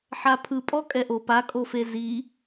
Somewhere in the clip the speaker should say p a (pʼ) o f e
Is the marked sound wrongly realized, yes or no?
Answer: yes